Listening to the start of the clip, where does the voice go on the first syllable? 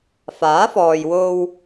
rising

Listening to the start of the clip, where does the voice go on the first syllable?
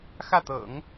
falling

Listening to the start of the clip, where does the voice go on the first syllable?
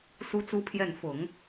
high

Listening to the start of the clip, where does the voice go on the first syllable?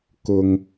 low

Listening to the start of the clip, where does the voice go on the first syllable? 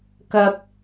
high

